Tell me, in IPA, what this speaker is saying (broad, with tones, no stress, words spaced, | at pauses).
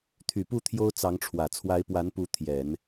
t̪ʰy˨˩pu˥˩ t̪ʰjo˥ʊ̯t͡sɑ˧˥ŋʈ͡ʂʰwä˨˩ t͡sʰwa˧˥ɪ̯pwa˧˥npu˧˥ t̪ʰjɛ˨˩˦n